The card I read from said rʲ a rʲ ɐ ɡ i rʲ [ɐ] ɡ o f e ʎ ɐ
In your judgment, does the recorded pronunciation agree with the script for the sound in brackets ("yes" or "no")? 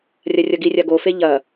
no